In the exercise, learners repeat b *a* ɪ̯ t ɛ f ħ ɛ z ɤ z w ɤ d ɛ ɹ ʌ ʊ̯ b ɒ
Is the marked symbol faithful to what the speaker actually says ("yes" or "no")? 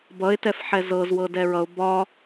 no